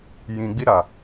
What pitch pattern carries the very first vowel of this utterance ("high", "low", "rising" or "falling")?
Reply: low